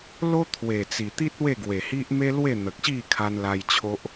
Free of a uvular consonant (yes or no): yes